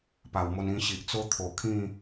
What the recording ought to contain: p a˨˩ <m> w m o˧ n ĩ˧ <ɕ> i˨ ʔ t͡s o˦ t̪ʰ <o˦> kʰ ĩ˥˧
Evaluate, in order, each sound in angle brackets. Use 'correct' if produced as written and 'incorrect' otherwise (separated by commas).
incorrect, correct, incorrect